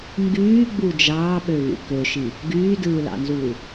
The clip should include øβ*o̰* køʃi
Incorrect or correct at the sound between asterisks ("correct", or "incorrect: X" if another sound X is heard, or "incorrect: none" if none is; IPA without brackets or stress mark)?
incorrect: ṵ